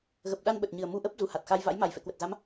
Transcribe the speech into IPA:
ɣ ə˨˩ p̚ ɗ a˧ n ɓ ə˨˩ t̚ ɲ ɨ˨˩ ə̯ m u˧ ʔ ə˦˥ p̚ z u˨˩ h a˨˩ t̚ x a˧ j v a̰˧˥ j m a˧˩ j f ɛ̰˧˨ k w ə˨˩ t̚ z a˨˦ m

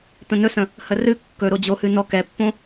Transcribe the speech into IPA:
t̪ ə̃ n ɵ s ə̃ | h ə r ɨ kː ɵ ɾ o d͡ʑ o h ɨ n ɔ k ɛ pː õ

